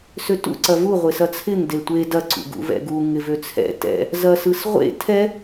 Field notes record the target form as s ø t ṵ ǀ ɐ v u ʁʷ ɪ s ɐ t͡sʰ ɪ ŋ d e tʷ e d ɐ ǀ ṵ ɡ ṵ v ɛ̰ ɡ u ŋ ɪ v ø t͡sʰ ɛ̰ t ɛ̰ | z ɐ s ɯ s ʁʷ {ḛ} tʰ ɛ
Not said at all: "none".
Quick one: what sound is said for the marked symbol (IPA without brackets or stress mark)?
ḛ